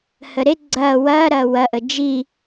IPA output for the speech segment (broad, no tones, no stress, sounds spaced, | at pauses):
h ə ɾ e ɡ͡ǀ ɐː w ɐː ɾ ɐː w ɐ ʔ ə d͡ʒ i